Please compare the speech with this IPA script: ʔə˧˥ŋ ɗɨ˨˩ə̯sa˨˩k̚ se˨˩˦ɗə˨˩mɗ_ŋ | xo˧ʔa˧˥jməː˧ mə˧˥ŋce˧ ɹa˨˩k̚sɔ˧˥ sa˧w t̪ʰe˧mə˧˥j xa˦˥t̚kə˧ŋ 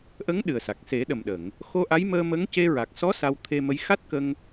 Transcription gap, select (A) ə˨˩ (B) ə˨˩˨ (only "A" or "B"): B